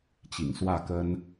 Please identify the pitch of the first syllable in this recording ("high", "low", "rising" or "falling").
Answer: low